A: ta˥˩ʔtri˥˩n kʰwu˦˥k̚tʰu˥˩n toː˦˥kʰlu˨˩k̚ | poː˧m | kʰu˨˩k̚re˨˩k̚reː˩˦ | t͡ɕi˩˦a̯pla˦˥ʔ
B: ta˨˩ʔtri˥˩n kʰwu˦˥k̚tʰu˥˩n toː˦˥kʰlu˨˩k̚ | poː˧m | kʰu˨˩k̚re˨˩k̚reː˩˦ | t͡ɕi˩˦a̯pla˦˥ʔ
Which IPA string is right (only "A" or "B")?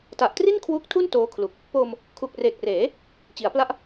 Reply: B